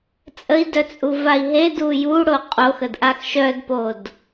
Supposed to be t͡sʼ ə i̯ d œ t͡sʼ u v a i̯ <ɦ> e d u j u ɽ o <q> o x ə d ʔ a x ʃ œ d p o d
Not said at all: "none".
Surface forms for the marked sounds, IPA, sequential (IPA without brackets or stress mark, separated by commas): ɦ, qʼ